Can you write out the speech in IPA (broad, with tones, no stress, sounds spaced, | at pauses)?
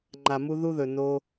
ŋ͡ǃ a˨ m u˧ ð u˦ ð ɵ˨ n o˧